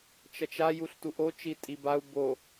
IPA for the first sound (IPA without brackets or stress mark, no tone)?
t͡ʃ